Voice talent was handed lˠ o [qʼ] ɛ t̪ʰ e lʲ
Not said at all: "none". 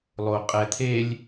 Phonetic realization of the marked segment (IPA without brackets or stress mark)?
qʼ